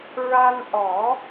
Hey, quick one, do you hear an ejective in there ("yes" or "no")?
no